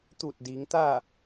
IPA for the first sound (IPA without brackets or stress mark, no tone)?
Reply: t̪